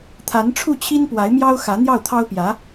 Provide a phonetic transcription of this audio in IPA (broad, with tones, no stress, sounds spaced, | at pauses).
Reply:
t̪ʰ a˧˥ n ʈ͡ʂʰ u˥˩ t͡ɕʰ i˥ n p w a˧˥ ɪ̯ m j ɑ˥ ʊ̯ x ä˧˥ n̪ j ɑ˥˩ ʊ̯ t̪ʰ ɑ˥ ʊ̯ p j ä˧˥